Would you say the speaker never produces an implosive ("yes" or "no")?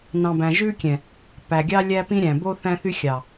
yes